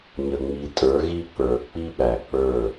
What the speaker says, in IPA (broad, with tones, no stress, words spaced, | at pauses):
ɲə˨ŋ͡mi˨tʼə˞˨˦ ɣi˦k͡pə˞˨ k͡pi˦ɓæ˨k͡pə˞˦˨